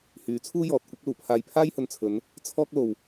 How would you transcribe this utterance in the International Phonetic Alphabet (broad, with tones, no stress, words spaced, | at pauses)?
hyː˨˥t͡sʰuː˥ jɔː˨t̚kʷɪ˥k̚luː˨˩pʰaː˧j pʰaː˥jhɵ˨nt͡sʰɵ˨˧n | t͡sʰɔː˥k̚lo˨w